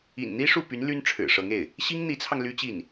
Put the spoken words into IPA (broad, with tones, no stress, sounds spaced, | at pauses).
ḭ˨˩ n n̪ i˥ ʂ u˥˩ p y˧˥ n l y˥ n ʈ͡ʂʰ ɻ̩˨˩ ʂ ɤ˧˥ ŋ e˥˩ ɪ̯ | ɕ i˥ ŋ n̪ i˧˥ t͡sʰ ɑ˧ ŋ l y˥ t͡ɕ i˥˩ n